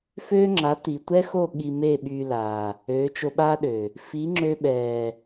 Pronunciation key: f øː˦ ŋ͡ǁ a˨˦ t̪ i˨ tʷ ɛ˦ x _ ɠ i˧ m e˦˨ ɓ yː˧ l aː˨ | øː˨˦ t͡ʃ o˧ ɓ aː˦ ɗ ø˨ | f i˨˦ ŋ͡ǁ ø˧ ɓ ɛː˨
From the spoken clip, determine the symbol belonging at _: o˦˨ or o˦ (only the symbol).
o˦˨